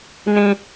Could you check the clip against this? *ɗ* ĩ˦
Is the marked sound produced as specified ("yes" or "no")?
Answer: no